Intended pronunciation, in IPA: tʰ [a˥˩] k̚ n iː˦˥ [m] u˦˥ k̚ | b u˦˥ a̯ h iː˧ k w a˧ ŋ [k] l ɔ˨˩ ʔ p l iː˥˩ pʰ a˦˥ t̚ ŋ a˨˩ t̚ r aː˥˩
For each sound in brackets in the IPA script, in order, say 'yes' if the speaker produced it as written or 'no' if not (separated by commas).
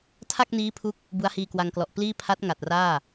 yes, no, yes